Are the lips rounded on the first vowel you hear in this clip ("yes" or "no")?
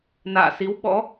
no